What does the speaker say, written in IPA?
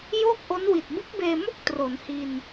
j oː˥˩ k̚ ʔ o˦˥ n w i˨˩ t̚ b ɯ˦˥ k̚ b eː˧ m o˥˩ k̚ t r o˩˦ n h i˧ n

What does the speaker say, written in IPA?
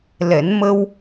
l ɛ˨˩˦ n m ə˧ w

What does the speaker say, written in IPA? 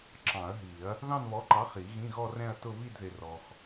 ǁ ɑ̃˨˩˦ ɐ̯ ɦ i˨˩˦ ɐ̯ | ð ɑ̃˥˧ n β ɔ˨˥ ǃ ɑ˨˥ χ i˨˩˦ ɣ ĩ˧˥˧ ɣ ɔ˥˧ r ɛ̃˥˧ ɐ̯ t ʊ˥˧ β i˥˧ d ð ɪ˨ r ɔ˨ x

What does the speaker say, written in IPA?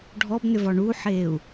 ɖʱ ɔ b n ʏ v ɒ ɳ u ħ eː u̯

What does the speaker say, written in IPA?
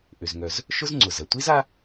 ʔ ʏ˩ z ŋ œ˩ z | ʃ ʊ˥ z ŋ͡ǀ ʊ˩ z ɐ˩ tʷ i˥ z a˥

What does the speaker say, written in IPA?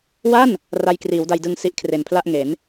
w a˥˩ n | r a˧ j k r iː˩˦ w d a˧ j d ɯ˧ ŋ s i˦˥ ʔ kʰ r e˨˩ n pʰ l a˥˩ ʔ ŋ e˩˦ n

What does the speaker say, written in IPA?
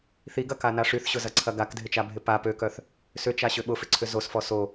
θ i ɡ ɐ k a n a ʂ y θ ɕ ʊ z ɐ ǀʰ ɐ ɡ a k dʱ ɪ t͡ʃ a bʱ ɪ p a p ø k œ θ | s ʏ t͡ʃ a ɕ ʏ ɓ ʊ f ɪ ǀʰ ʏ z o s f ɔ s o

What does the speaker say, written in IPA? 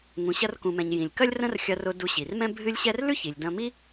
ŋ ũ˩ ɕ ɐ˧ r k ũ˩ m ɛ̃˩ ɲ j ĩ˩ lʲ k ɐ˥ lʲ r ə̃˥ r xʲ ɐ˧ r ʊ˧ d u˧ ɕ i˩ r m ɛ̃˥ bʱ ɨ˥ lʲ ɕ ɛ˥ r l ʉ˥ ç i˩ lʲ d ɐ̃˧ m i˥

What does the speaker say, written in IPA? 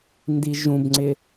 n d i ʒ ũ b ŋ͡ǀ ɪ

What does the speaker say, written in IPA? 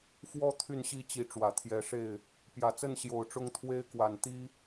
f w ɔ˦ t̪ʰ y˥˨ n ɕ i˥˨ t͡ɕ i˨˦ ʈ͡ʂ w ä˨˩ t̪ʰ j ɛ˨˦ ʂ e˥˨ ɪ̯ | p j ä˨˩ t͡s ə˥˨ n ɕ j o˨˩ ʊ̯ ʈ͡ʂ ʊ˦ ŋ t̪ʰ w e˦ ɪ̯ k w a˨˩ n t̪ i˦

